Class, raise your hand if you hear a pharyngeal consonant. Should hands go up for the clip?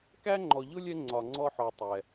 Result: yes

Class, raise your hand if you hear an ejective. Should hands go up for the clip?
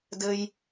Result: no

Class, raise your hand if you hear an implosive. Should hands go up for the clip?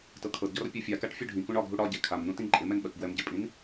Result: yes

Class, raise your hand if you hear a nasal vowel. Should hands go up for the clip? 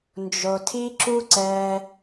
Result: no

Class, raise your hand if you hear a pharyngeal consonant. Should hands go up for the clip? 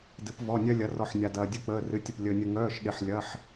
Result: yes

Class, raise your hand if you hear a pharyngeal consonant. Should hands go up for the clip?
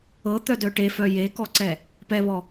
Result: no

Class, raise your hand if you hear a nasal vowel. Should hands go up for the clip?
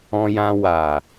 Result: yes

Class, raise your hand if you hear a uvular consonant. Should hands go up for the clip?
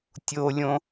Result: no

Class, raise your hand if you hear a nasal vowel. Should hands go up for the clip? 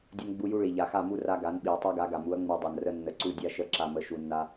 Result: no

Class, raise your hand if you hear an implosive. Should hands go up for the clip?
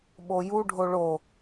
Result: yes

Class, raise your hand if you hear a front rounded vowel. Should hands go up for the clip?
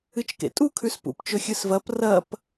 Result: no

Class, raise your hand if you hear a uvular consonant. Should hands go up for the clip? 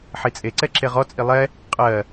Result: yes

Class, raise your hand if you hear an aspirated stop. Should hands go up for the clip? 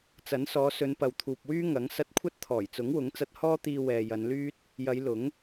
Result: yes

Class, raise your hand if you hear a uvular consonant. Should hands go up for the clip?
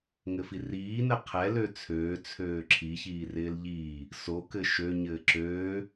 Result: yes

